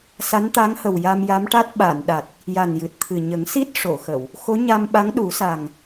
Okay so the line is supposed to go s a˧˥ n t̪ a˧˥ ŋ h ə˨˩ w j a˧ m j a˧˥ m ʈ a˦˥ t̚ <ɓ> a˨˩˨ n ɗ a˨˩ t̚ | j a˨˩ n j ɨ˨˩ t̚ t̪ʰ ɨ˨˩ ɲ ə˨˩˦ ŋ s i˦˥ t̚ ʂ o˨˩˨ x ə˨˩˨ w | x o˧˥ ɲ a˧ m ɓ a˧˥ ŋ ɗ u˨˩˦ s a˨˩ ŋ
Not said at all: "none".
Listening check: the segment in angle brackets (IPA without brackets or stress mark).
ɓ